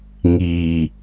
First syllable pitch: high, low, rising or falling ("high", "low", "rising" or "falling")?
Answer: low